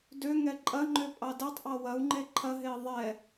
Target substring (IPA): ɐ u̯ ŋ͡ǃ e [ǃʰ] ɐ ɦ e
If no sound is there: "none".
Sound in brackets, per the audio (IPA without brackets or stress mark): ǃʰ